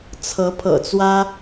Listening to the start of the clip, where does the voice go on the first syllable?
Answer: rising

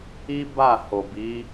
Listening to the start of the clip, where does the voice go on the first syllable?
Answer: high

